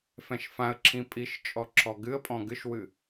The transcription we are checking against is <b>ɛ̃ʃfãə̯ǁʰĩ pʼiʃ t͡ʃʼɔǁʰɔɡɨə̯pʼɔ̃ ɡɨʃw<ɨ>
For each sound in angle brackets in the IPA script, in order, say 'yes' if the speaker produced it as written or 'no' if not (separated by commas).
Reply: no, yes